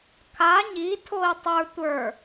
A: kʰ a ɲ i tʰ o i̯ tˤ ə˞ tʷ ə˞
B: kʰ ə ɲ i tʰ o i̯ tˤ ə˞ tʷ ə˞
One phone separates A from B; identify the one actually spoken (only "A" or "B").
A